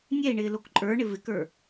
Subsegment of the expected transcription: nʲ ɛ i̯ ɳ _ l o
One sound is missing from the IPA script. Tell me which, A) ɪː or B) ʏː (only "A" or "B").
A